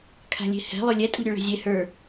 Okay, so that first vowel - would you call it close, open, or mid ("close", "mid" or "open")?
open